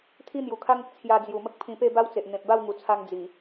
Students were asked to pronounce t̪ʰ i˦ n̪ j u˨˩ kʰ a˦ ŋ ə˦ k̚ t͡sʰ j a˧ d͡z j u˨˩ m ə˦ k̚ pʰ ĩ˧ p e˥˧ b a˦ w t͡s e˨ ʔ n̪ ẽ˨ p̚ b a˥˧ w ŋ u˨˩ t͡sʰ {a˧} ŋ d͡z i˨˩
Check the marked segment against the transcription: correct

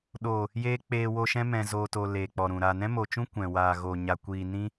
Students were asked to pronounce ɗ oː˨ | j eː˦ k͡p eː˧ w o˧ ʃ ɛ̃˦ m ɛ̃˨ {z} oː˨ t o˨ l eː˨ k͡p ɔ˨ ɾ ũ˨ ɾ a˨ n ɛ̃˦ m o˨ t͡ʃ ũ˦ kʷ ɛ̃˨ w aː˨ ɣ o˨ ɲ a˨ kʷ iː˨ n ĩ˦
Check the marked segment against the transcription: correct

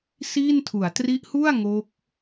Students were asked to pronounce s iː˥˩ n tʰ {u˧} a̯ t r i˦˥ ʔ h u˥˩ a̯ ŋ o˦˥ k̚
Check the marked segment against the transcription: incorrect: u˩˦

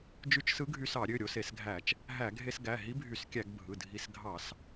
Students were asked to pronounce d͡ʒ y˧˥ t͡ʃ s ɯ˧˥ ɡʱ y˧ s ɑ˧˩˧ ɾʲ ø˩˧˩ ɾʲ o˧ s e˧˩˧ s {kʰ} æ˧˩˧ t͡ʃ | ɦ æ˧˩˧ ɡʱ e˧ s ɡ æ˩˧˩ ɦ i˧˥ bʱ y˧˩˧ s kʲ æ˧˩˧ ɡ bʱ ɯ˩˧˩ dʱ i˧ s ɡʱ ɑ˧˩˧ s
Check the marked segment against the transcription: incorrect: ɡʱ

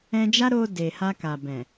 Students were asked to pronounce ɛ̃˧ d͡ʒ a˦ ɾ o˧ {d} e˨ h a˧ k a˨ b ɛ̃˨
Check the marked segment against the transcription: correct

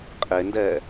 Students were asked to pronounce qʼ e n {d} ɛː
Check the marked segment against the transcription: correct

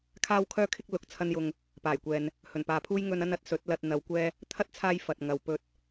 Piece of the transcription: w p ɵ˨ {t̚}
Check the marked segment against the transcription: correct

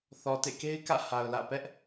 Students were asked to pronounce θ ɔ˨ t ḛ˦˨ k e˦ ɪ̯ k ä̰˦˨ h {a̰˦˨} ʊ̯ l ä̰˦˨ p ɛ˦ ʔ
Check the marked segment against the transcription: incorrect: a˨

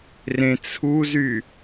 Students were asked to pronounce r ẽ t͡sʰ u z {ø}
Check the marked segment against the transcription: incorrect: y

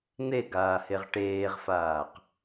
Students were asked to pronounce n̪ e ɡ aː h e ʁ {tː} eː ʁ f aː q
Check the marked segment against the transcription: incorrect: ʈ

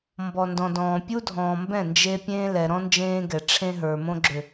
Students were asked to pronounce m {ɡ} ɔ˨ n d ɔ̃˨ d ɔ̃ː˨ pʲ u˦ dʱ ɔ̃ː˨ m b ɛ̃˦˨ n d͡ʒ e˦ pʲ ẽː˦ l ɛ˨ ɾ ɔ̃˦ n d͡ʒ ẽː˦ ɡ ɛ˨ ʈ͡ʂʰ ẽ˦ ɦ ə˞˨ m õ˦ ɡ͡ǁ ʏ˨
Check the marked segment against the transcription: incorrect: b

